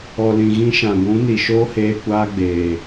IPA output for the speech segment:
ɔ˨ l ĩ˨ ɣ ĩ˧ ʃ ã˨ ɡʷ ũ˨˦ n i˨ ʃ oː˦ h eː˧ kʷ aː˦ ɡ͡b eː˨

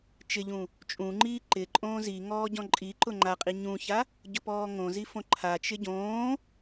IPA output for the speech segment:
t͡ʃ ɪ ʎ ũ | t͡ʃʼ ũ ŋ͡ǃ iː ǃ ɪ ǃʼ õː z i ŋ ɔː ɟ ɔ̃ ǃʼ i ǃ ʊ ŋ͡ǃ a qʼ i ɲ ũ ç a | ɟ ʊ p ɔː ŋ õ z i f õ ǃʰ a t͡ʃ ɪ ɟ õː

